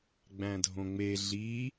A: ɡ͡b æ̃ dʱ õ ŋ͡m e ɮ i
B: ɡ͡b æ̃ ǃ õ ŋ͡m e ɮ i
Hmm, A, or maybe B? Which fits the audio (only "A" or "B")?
A